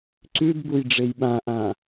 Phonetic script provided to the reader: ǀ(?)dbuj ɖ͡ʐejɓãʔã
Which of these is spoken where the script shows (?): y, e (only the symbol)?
y